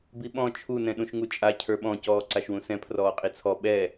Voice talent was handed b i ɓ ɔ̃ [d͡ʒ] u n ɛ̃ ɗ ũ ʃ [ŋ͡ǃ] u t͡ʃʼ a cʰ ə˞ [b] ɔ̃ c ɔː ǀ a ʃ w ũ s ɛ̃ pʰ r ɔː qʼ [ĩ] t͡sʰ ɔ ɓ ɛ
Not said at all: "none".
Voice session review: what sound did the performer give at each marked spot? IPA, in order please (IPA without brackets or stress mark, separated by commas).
t͡ʃʰ, ŋ, ɓ, i